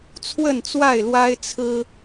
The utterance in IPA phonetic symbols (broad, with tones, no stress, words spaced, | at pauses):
t͡sʰwə˥˨nt͡swa˥˨ɪ̯lwa˦ɪ̯ t͡sʰɹ̩˦